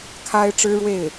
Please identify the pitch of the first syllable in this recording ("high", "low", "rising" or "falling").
high